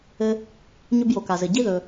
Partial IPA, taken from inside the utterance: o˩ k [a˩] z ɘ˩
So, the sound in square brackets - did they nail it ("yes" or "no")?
yes